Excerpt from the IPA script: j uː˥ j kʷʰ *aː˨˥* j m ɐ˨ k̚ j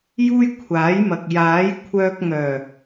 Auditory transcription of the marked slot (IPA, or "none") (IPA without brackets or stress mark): aː˨˥